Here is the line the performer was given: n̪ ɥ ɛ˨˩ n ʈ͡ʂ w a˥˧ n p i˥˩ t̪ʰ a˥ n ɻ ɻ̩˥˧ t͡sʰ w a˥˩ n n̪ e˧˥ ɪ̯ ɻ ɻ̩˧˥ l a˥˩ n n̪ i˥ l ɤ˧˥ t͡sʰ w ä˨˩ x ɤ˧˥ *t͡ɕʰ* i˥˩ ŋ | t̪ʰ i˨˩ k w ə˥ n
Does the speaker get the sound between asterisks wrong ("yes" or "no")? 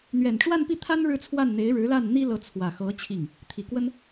no